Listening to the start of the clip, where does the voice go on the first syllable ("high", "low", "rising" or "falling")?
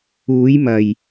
rising